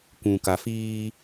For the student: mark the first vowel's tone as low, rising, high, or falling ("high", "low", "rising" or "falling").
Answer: low